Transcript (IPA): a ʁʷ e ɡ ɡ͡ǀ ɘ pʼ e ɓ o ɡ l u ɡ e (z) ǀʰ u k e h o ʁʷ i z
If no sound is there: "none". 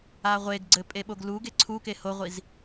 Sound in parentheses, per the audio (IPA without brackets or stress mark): none